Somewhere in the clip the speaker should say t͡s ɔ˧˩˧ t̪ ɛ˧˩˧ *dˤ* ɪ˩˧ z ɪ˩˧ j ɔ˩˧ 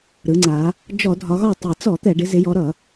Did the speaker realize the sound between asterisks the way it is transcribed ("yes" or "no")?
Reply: no